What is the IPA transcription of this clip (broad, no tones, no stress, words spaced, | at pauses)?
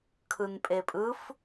kʰɯnpʼepʼɯf